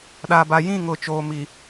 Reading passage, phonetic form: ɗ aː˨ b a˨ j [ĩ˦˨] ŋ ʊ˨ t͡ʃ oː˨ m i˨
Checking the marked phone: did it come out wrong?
no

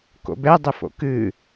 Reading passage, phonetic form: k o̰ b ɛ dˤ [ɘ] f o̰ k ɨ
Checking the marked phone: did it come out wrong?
no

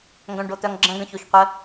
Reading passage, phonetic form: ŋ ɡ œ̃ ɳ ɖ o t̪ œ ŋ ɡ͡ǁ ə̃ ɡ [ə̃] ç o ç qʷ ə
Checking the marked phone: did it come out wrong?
no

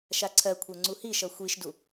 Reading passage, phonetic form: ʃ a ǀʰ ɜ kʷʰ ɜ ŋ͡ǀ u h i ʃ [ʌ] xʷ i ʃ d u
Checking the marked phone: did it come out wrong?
no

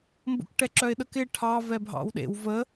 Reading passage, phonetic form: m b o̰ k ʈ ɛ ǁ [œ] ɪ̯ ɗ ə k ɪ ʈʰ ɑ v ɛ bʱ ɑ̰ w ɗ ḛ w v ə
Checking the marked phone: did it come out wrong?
no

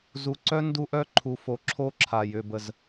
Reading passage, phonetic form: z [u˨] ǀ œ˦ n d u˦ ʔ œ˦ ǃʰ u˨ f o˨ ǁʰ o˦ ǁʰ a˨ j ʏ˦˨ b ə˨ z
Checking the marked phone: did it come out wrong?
no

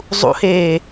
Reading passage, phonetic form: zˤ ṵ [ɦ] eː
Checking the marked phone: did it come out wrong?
yes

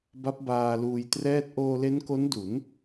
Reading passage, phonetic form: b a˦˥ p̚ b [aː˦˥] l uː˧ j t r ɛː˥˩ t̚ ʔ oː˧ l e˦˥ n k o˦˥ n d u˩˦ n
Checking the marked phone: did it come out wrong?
yes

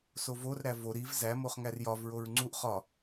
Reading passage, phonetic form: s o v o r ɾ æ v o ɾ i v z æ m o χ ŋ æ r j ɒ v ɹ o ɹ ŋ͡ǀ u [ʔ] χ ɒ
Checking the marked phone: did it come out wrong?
no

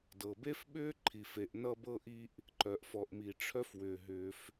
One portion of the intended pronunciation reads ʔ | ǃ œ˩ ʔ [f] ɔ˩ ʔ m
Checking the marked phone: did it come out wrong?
no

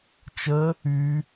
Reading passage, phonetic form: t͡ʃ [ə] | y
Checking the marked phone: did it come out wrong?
no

